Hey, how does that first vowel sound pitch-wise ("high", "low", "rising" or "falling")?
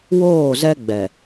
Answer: falling